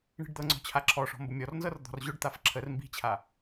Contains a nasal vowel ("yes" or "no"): no